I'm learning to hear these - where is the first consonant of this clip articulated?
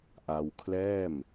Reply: throat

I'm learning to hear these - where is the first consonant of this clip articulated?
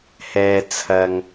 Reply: throat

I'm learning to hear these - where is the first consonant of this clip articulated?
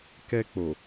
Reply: velum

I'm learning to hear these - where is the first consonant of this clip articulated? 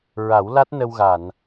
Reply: tongue tip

